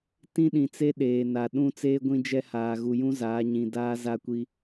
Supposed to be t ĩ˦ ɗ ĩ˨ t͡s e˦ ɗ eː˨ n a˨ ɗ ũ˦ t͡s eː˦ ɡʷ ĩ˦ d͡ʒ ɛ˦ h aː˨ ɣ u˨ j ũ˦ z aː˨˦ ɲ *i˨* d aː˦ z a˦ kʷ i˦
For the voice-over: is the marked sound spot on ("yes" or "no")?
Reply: no